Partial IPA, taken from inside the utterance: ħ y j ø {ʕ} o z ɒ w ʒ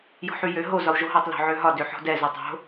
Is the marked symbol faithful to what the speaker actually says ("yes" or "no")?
no